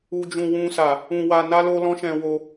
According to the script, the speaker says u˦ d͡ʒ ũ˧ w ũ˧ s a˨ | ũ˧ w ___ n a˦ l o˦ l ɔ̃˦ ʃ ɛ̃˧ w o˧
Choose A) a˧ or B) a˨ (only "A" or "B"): A